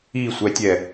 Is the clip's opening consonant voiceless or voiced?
voiceless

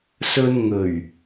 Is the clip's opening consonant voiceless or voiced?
voiceless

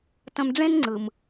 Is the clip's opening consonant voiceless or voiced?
voiceless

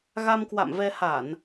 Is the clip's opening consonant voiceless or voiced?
voiced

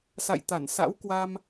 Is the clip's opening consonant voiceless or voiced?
voiceless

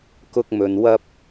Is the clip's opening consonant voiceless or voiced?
voiceless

